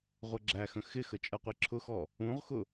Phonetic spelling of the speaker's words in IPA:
ʁʷ ʌ ɡ͡ǁ æ x ə̃ x ɪ x ə t͡ʃʼ ʌ qʷ i ǁʰ ʊ x ɔ | ũ ʁ x ʊ

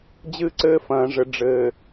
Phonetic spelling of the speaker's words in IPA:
d͡ʑ ɨ˦ ǀ ɘː˦ f ɐ̃ː˨ ʐ ɘ˨ ɖ͡ʐ ɘː˨

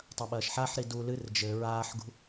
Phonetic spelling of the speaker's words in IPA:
tˤ ɐ ɓ ɐː ʃ ħ a ħ ɾ i d u l ɨ r d͡ʒ ɘ ɹ aː ħ ɡ ṳ

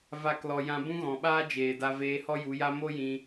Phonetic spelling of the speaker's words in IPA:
v a˦˨ k l ɔ˧ j ã˧ b ũ˦ ɣ ɔ̃˨ ɓ aː˦ d͡ʒ eː˨ d a˧ v eː˧ h ɔ˦ j u˨˦ j a˦ m o˦ j ĩ˧

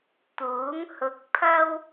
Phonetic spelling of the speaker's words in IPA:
t̪ uː˨˥ ŋ h ʊ˧ k̚ pʰ ɐ˥ w

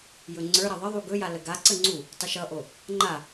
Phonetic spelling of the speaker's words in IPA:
j ɵ ŋ͡ǀ ə˞ ɾ ʌ ðˤ ə ðˤ u ɡ ɵ j a l ə ɡ a ǀ ə ŋ͡ǀ u | tˤ ə ʃ ʌ ʔ o | ŋ͡ǃ a

